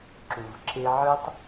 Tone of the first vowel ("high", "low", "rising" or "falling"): low